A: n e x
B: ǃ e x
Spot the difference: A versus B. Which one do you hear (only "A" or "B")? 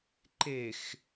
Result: B